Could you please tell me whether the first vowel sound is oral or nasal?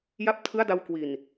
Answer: oral